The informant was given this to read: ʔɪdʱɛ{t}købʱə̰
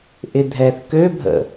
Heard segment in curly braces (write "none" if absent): θ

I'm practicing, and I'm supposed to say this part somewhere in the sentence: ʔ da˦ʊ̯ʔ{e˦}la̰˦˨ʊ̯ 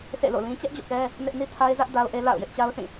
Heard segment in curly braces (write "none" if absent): e˦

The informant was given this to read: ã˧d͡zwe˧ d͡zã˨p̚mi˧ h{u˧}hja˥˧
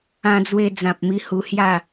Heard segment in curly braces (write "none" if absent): u˧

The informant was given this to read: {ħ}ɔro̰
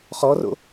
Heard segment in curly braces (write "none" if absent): χ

